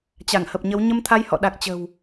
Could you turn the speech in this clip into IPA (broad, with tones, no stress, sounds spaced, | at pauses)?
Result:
t͡ɕ a˧˩ ŋ h ə˨˩ p̚ ɲ ə˨˦ w ɲ ə˧ m t̪ʰ a˧ j h ɔ̰˧˨ ɗ a˨˩ k̚ t͡ɕ ə̤˨˩ w